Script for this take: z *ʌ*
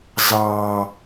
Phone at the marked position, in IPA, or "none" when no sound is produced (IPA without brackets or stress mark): ɑ